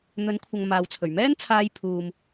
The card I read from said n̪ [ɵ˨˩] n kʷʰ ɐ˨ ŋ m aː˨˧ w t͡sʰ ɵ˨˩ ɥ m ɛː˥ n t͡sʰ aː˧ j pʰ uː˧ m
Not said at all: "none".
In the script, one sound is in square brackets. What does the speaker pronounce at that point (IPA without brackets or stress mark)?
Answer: ɵ˨˥